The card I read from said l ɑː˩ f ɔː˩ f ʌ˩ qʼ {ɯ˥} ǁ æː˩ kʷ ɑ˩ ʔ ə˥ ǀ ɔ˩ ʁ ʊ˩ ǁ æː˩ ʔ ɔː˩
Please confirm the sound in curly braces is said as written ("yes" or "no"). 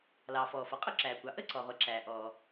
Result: no